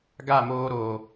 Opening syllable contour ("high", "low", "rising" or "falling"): falling